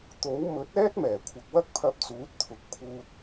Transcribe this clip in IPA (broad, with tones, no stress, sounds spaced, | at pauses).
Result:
t̪ o˨˥ w m ɵ˨˥ t̚ ɛː˥ t̚ m ɛː˨˩ kʷʰ ɐ˨ k̚ w ɐ˥ k̚ pʰ ɐ˧ p̚ t͡s uː˨˥ t̚ t̪ʰ ʊ˨˥ k̚ pʰ uː˧ t̚